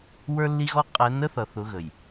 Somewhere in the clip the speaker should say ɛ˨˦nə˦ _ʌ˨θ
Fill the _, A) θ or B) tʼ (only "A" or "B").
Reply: A